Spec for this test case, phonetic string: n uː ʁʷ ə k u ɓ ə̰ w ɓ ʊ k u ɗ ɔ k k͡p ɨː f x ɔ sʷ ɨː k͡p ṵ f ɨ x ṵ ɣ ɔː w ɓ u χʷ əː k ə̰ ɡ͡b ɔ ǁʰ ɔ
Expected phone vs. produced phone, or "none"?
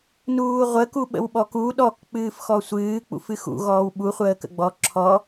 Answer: ʊ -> ɔ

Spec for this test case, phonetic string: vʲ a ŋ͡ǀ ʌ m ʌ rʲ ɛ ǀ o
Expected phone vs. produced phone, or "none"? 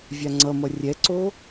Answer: none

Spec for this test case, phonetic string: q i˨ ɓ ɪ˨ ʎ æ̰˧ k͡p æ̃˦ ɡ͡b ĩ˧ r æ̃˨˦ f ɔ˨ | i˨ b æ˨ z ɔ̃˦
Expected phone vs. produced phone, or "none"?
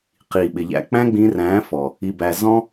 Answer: none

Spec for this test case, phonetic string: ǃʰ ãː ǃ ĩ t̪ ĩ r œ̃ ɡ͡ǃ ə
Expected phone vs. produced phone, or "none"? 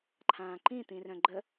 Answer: none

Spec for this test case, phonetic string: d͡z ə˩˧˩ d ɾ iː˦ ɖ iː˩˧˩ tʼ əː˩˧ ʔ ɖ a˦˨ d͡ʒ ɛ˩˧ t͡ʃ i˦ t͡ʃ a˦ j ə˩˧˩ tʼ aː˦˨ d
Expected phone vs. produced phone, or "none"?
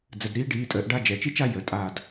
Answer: none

